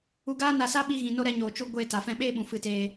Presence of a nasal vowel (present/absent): present